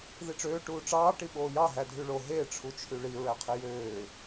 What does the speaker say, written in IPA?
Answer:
ð i ʈ͡ʂ øː ʈ uː ʈ͡ʂ ɑː ʈ i ɓ oː j ɑ ɦ æ dʱ y ɭ o ɦ e ʈ͡ʂʰ u t͡ʃʰ y ɭ i ɹ æ qʰ e j øː

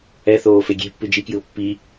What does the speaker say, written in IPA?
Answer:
ɛ θ oː f e ɡʲ e̤ pː ɨ d͡ʒ i k j ɨ ʊ̯ pː i

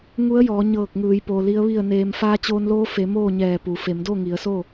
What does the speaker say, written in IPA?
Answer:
ŋ u˧˥ ə̯ j ɔː˩˧ ɲ ɤː˧˩ k̚ ŋ ɯː˩˧ j p o˩ l i˧˥ ə̯ ʋ i˥˨ ə̯ n eː˧ m f aː˧ t͡ɕ oː˧ n l oː˧˥ f e˩˧ m oː˥˨ ɲ ɛː˧˩ p u˩ f e˩˧ m d o˥˨ ŋ i˩˧ ə̯ s o˥˨

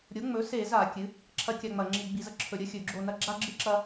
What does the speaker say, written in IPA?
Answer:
ɾʲ o˩˥ ŋ͡m ɵ˩˥ s e˧˩˧ z a˧˩˧ kʲ ɨ˩˥ | ǁʰ ɐ˦ kʲ a˦˨ ŋ͡m ɐ˧˩˧ ŋ͡ǁ i˧˩˧ ɡ͡b i˧˩˧ z ɐ˦ ǁʰ ɵ˧˩˧ ɾʲ ɐ˦ xʲ ɵ˧˩˧ ɡ͡ǁ o˦˨ n ɐ˦ ɡ͡ǁ a˦ ɡ͡ǁ ɨ˦ ǁ ɐ˦

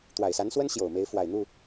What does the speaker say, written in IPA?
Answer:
t̪ w a˨˩ ɪ̯ s a˧˥ n s w ə˥ n ɕ j o˨˩ ʊ̯ m e˧˥ ɪ̯ f w a˨˩ ɪ̯ n̪ u˥˩

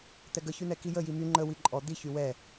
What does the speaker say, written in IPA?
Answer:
t̪ ɛ ɡ ə ç y n̪ ɛ k i j ə j i m y ŋ͡ǃ ə w i ǃʼ ɔ d̪ i ç y w ɛ

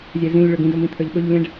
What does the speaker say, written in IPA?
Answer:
zʲ ɛ z ĩ lʲ ɭ ɵ ɡ ĩ d ɵ m ĩ t̪ʰ ə˞ ʎ ɓ ɵ ʎ lʲ ɛ̃ ɖ

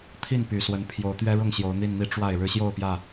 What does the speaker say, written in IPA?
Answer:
t̪ʰ i˥˨ n p y˨˩ s w ə˨˦ n pʰ j o˨˦ ʊ̯ t̪ ɥ ɛ˦ ɻ ʊ˥˨ ŋ ɕ j o˨˦ ʊ̯ n̪ i˥˨ n n̪ i˥˨ ʈ͡ʂ w a˥˨ ɪ̯ ɻ ɻ̩˦ ɕ j o˥˨ ʊ̯ p j ä˥˨

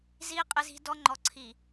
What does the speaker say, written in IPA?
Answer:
z i˦ qʼ ɪ˦ z i̤˦ d ɔ˦ ŋ͡ǃ ɔ˨ ǀʰ i˨

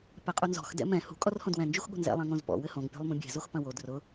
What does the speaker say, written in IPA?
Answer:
p ɛ qʼ u n z ɔ̤ x d ɛ̰ m ɛ̃ h ṳ kʼ ɔ r h õ d w ɛ̃ n d͡ʒ u x ɠ o̤ n z ɛ̰ lˠ ɛ̃ ŋ õ z p ɔ̰ w ɘ h õ ŋ pʲ ɔ̤ lˠ m ũ bʲ ɛ̤ z o x p ɐ̃ w o d r ʊ

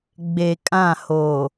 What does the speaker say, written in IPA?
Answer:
ɡ͡b e˨ kʼ ã˦˨ h o˨

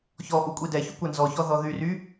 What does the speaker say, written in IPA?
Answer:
ç ɔ ʔ u kʷʼ i d ɛ ç u kʷ æ n z ɔ ç ɔ ð ɔ ð y r y

